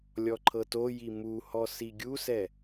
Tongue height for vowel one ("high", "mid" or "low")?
mid